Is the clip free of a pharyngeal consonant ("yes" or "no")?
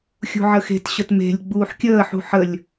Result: no